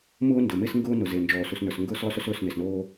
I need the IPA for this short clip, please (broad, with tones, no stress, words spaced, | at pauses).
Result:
mʊː˦ndɵ˨ me˦sŋɡʊː˦ nʊ˨ze˨ nd͡ʒɔː˨su˨snə˞˨s ŋɡʊː˦slˠɵ˦sɵ˦s ɵː˦˨sne˨snoː˦